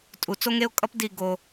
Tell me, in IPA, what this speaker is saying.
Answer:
tʼu˨t͡so˦ŋe˦ʊ̯kʼʌ˦p di˦˨ ɡo˦

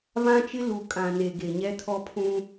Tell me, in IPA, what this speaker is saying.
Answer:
vã˦t͡ʃɪ˦ lu˨kʼã˨ ne˨ɡe˨ɲɛ˦ tʰɔ˦pʰũ˦

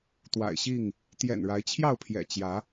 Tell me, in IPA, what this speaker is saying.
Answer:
t̪wa̰˨˩ɪ̯ɕi˥˨ŋ | t̪jɛ̰˨˩nɻa˨˦ɪ̯t͡ɕʰjɑ˥˨ʊ̯pʰjɛ̰˨˩ t͡ɕjä˨˦

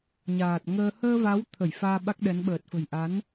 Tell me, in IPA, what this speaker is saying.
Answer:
ɲaː˨˩t̚ŋəː˧ həː˧ va˨˦wt̪ʰə˧˩j faː˧ɓa˦˥k̚ɗɛ˨˦n ɓəː˨˩t̚fə̤˨˩j ʔa˨˦n

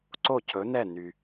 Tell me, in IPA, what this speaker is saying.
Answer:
ǀo˥˩cʰɵ˩˥nɛ˥˩ ny˩

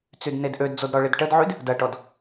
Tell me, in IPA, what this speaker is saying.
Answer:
t͡sydnedʔødd͡zod ɾɔɭɪdʈədʕyd | dɐʈɔd

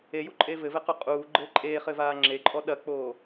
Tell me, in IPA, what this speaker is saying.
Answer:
ejuǃʼe vɘvɘqu qʼuːɡ͡ǃɘː ǃʼeːχɘvaː ŋ͡ǁeǃʼɔ ɗɐk͡poː

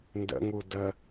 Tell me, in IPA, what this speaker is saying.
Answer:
ndə̰ŋu də

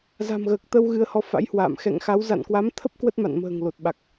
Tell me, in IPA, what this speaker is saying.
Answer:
za̤˨˩mɣəː˨˩k̚t̪ə˧w ɣɨ˧ə̯hɔ˧ fa̰˧˥jhwa̰ː˧˨m xɛ̰˧˨ŋxa˨˦w za̰˧˨nkwa˨˦mt̪ʰə˦˥p̚ kwə˦˥t̚ma̰˧˨nmə̤ː˨˩ŋ lo˨˩t̚ɓa˨˩k̚

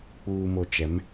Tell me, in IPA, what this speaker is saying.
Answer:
k͡puː˨mo˨t͡ʃɛ˨˦m

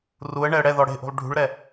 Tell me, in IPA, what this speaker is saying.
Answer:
ruə̯ɳɛə̯ ɽɛðɔ ɽe̤ʔṳlˠ ɖʱṳɭɾɛ

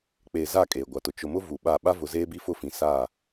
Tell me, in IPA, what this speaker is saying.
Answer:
k͡peː˨za˦˨ kʼeː˨ɡʷa˨tʊ˨ t͡ʃʊ˨mʊ˦ vu˨ɓa˦˨ ɓa˦vʊ˨ zeː˦bi˦fʊ˦˨fĩ˨ sa˦˨

